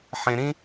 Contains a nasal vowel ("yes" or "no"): yes